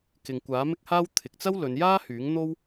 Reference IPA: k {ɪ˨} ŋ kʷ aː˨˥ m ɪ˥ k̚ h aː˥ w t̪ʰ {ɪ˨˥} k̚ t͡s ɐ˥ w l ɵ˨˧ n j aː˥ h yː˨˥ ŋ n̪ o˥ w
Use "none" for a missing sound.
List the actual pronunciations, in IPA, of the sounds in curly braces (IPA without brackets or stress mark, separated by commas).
ɪ˨, ɪ˨